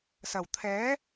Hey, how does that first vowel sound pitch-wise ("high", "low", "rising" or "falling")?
low